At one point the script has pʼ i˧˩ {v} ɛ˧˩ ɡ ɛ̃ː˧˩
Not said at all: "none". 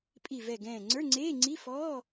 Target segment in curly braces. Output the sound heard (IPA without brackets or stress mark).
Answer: v